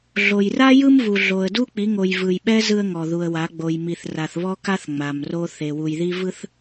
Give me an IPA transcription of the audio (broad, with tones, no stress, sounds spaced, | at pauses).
ɮ o˨ j r a˦ j ɯ˦ m v u˨ ɮ o˨ ə̯ d u˦ k͡p i˨˦ ŋ o˨ j v ɯ˨ j ɓ ɛ˦ z ɯ˦ ə̯ ŋ ɔ˨ ð u˨ ə̯ w a˨˦ ɡ͡b o˨ j m i˨ θ r a˨ θ β ɔ˦ k a˦ θ ŋ͡m a˨ m r o˦ θ e˨ w u˨ j ð i˦ v ɯ˦ θ